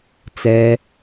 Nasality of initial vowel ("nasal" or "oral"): oral